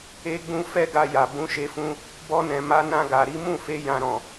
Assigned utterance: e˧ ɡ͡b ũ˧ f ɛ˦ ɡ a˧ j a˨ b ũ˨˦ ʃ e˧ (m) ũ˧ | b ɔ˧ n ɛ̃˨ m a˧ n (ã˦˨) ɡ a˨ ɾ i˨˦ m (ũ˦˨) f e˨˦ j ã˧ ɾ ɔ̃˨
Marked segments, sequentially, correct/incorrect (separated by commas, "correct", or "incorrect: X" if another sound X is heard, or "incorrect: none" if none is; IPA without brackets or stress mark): incorrect: f, incorrect: ã˧, correct